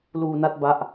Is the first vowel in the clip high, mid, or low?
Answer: high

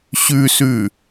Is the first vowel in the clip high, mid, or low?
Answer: high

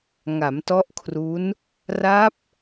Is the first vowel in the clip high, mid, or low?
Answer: low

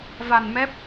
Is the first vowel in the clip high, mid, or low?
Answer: low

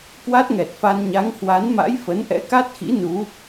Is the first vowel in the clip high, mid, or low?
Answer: low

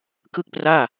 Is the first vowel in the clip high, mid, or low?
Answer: high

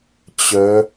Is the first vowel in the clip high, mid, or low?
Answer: mid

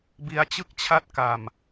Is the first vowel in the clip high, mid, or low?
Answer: high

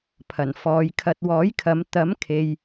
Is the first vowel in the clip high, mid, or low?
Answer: low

